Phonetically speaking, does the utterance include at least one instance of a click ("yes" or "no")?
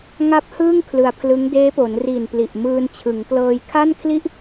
no